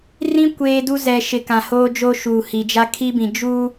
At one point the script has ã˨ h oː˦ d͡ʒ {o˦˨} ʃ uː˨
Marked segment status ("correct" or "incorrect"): incorrect